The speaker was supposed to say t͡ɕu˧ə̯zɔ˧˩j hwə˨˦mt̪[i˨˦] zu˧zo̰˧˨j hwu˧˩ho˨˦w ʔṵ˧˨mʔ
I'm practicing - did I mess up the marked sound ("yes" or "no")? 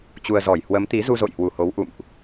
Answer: no